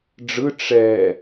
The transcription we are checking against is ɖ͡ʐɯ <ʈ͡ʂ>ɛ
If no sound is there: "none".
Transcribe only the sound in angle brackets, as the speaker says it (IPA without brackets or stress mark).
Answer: ʈ͡ʂ